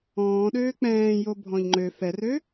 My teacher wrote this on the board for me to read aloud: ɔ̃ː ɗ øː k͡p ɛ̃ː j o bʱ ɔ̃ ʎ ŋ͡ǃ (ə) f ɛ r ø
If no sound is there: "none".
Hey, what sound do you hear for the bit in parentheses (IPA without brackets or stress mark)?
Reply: ø